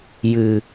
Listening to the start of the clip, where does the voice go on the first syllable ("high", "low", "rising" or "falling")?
low